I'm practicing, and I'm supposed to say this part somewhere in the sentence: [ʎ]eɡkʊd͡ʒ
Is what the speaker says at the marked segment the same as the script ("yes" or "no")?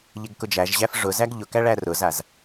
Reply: yes